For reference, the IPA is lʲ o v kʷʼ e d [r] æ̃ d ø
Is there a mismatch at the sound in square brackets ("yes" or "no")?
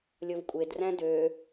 no